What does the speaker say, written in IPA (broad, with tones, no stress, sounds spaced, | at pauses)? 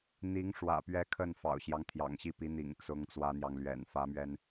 n̪ i˧˥ ŋ ʂ w ä̰˨˩ p ɥ ɛ˧˥ kʰ ə˥˩ n f ɑ̰˨˩ ʊ̯ ɕ j ɑ˦ ŋ t̪ʰ j ɑ̰˨˩ ŋ ɕ i˥˩ p i˧˥ n̪ ḭ˨˩ ŋ t͡s ʊ˧˥ ŋ t͡s w ä˥ n̪ j ɑ˨ ŋ l ɥ ɛ̰˨˩ n f ä˧˥ m ɥ ɛ˧ n